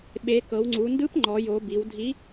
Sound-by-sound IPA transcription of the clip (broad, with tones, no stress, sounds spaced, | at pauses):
ɓ e˩˧ k ɤ˩˧ w ŋ͡ǀ u˩˧ n d ɯ˧˥ p ŋ͡ǃ ɔ˩˧ j o˩˧ b i˩˧ w dʱ i˧˥